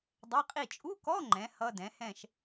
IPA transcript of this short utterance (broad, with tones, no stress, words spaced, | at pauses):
dˤɛ˧˥˧qʼi˥˨ t͡ʃʼu˧˥˧kɔ˧˥˧ŋ͡ǃɛ̃˩˧ hʌ˧˥˧dɛ̃˩˥hɛ̃˥˨ʃ